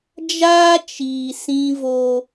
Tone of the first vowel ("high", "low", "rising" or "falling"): high